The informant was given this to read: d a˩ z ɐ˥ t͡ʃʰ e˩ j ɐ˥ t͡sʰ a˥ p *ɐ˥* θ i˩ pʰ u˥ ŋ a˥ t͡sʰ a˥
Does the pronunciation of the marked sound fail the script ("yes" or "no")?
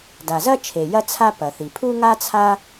yes